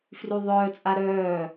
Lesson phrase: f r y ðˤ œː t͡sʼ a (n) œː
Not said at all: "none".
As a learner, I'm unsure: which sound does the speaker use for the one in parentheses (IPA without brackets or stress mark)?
ɾ